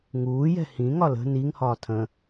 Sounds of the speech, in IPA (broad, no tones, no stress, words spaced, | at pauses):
ŋuːjɛ̤ hĩŋɒ lə̤ niŋhɒː tʰə̃